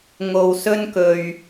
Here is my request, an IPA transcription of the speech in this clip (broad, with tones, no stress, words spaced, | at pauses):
ŋo˧wsɵ˥nkɵ˧ɥ